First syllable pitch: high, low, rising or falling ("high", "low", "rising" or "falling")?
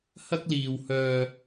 high